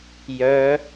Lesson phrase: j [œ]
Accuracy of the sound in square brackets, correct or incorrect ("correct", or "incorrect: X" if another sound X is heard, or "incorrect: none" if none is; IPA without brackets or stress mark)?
correct